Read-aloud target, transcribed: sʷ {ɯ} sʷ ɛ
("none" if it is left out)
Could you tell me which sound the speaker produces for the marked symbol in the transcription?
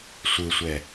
ɯ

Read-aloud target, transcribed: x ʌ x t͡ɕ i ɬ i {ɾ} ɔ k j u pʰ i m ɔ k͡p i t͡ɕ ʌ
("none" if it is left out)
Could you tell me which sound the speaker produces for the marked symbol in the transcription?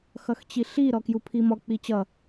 ɾ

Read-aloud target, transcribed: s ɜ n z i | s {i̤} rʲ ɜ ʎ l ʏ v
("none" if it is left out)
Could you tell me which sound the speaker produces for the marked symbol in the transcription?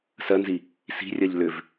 i̤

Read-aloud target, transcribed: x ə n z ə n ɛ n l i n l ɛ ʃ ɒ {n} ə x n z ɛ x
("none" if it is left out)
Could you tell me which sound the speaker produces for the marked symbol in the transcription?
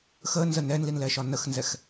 n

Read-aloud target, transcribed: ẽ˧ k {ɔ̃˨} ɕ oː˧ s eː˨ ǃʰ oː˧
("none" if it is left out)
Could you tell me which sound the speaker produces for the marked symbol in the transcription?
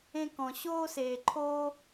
ɔ̃˨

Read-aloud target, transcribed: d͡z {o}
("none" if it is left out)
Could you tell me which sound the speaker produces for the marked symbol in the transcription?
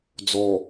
ɔ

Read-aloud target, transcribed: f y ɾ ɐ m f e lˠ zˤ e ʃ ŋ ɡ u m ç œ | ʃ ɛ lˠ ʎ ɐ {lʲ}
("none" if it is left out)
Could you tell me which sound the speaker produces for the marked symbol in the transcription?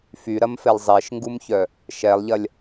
lʲ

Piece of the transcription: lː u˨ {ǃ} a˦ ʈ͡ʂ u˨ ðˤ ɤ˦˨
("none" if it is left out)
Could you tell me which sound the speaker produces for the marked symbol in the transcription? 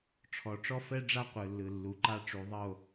ǃ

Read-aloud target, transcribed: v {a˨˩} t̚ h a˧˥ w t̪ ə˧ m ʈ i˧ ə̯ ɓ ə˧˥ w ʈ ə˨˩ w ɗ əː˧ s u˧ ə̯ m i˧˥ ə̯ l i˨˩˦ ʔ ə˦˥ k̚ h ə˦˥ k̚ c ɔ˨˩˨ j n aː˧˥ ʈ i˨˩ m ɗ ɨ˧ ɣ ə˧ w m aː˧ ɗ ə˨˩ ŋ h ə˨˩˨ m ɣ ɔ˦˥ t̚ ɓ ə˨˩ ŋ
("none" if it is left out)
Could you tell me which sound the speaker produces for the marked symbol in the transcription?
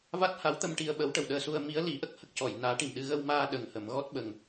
a˦˥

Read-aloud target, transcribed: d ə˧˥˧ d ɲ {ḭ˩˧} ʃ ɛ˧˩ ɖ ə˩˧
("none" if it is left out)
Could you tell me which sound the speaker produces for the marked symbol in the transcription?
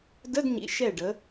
ḭ˩˧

